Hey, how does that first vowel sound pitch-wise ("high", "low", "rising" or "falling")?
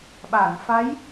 low